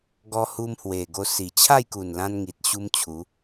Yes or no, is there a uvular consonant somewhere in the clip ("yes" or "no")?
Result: no